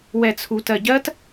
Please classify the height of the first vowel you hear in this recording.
mid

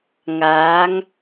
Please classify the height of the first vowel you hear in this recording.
low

